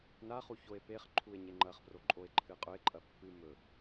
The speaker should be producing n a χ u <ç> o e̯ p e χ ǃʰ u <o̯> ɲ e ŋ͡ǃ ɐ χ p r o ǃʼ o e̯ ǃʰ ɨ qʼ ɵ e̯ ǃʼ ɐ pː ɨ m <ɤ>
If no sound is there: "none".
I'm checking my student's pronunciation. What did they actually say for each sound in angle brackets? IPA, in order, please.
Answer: ç, e̯, ɵ

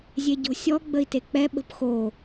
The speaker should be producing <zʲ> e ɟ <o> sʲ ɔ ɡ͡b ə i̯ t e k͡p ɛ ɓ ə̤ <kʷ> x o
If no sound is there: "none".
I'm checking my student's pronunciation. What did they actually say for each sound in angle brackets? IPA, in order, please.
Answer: zʲ, o̤, p

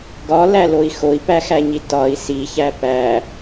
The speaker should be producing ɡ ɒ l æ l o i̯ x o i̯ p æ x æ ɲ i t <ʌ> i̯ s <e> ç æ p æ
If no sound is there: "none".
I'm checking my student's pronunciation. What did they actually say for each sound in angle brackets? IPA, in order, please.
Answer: ɒ, i

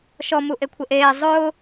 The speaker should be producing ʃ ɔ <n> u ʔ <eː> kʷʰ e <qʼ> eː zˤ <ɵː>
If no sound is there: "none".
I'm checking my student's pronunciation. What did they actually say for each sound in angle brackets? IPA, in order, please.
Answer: m, e, ʔ, ʊː

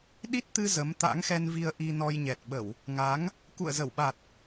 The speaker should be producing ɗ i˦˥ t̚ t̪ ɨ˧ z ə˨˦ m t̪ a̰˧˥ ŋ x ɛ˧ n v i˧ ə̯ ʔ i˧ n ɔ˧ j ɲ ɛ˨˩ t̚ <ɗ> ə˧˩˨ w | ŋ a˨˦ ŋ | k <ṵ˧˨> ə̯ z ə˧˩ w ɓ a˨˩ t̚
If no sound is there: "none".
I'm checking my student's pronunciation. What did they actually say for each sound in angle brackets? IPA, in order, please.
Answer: ɓ, ṵ˧˨

